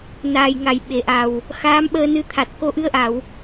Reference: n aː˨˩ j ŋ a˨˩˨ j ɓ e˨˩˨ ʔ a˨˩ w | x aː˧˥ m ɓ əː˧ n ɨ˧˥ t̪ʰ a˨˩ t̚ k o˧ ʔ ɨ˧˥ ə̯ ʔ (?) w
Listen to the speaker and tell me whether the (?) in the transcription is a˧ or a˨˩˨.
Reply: a˨˩˨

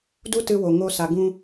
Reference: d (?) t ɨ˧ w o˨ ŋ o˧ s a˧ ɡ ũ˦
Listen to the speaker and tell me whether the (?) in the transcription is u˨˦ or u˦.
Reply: u˦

